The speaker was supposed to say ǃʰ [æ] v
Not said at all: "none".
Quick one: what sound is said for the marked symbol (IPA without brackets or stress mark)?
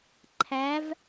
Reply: æ